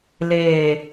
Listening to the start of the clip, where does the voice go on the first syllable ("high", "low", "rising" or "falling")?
low